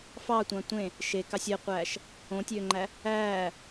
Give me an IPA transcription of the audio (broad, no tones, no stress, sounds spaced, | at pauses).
f ɑ tʷ ɑ̃ tʷ ẽ | ʃ e k ɑ sʲ e qʷ æː ʃ | õ tʲ øː ŋ͡ǃ æ | æː